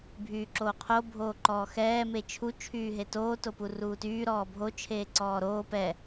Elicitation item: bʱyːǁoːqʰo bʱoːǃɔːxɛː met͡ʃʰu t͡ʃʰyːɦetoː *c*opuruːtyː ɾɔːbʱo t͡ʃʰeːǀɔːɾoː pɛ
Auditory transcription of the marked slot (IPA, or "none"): t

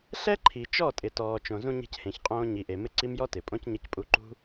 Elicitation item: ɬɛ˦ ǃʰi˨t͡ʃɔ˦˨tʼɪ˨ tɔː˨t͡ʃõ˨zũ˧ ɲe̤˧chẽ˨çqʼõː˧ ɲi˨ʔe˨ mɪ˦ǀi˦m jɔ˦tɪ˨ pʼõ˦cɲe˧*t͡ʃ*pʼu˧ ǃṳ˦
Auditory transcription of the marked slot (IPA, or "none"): c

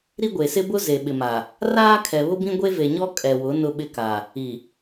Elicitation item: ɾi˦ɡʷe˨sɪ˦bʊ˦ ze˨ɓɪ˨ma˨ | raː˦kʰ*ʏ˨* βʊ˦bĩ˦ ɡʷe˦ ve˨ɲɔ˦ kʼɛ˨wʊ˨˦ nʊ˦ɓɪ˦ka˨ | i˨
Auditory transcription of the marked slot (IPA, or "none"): ɛ˨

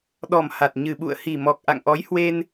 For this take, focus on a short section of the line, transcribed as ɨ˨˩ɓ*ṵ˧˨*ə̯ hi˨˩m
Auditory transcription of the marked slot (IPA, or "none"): ṵ˧˨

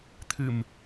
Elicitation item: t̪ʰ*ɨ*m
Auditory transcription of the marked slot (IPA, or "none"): ɨ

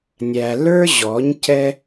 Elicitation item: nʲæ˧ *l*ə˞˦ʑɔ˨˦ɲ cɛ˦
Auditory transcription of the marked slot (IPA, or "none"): l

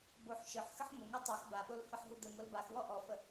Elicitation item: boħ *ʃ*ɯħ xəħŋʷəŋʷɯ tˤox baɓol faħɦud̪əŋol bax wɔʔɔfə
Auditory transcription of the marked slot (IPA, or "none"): ʃ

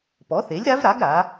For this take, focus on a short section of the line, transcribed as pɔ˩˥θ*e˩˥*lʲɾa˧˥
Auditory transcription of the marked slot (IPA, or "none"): e˩˥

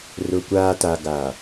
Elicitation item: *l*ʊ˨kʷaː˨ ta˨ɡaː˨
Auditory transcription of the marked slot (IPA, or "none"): r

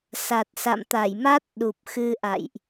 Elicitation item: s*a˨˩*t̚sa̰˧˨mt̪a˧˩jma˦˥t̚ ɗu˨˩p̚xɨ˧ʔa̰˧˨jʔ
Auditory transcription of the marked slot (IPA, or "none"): a˨˩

